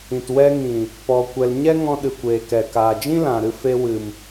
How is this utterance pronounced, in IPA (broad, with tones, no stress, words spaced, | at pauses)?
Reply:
ĩ˨twɛ˧ŋĩ˨ | pɔ˧kʷɛ˧l ɲɛ˦ŋɔ̃˧ ɗɨ˨kʷeː˨kɛ˨ kaː˨d͡ʒĩ˦lã˨ɾɨ˧ fe˧wɨ˨m